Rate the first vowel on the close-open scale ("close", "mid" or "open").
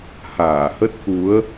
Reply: open